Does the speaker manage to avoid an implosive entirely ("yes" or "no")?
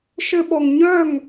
no